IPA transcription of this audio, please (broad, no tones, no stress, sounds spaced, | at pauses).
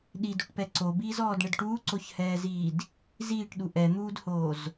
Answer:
ɗ i d u ʈ p ɛ ǀ o b iː z ɔː d ɳ ɘ d ʈ uː ǀ o ç h ɛː z iː d | z iː ʈ ɗ u ʔ ɛ n̪ uː d h oː z